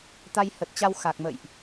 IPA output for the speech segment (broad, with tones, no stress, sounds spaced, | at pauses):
t̪ a˧ j h ə˨˩ t̚ t͡ɕ a˧ w x a˨˩ k̚ m ə̰˧˨ j ʔ